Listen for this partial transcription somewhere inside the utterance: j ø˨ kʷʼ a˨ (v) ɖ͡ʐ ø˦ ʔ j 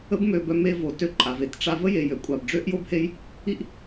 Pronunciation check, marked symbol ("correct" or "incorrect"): incorrect